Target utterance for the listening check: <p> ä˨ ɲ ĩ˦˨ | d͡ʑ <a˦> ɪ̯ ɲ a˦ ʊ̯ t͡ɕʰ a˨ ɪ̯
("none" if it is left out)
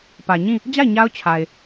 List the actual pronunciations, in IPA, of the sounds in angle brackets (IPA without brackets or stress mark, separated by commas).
p, a˦˨